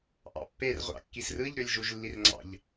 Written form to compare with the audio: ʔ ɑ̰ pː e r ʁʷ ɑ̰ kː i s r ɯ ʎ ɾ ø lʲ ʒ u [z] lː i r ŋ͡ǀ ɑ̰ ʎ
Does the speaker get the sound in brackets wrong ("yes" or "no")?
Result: yes